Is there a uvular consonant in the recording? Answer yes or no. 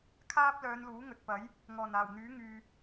no